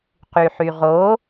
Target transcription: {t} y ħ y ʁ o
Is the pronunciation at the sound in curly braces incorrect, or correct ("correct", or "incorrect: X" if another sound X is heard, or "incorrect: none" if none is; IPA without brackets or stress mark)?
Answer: incorrect: q